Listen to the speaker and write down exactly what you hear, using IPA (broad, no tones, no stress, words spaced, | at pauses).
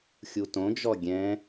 xʲutõd͡ʒɔ ɡʲɛ̃